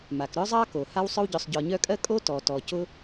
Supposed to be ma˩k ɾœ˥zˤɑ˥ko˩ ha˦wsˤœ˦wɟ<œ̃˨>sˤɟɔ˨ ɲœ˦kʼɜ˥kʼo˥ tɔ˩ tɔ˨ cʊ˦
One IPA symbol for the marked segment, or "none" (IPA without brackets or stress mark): œ˨